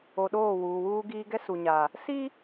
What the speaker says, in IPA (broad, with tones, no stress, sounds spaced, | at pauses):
o˨ ɗ oː˦˨ w uː˨ w uː˦ ɡ iː˦ ɡ ɛ˦ s u˨ ɲ a˨ | s i˦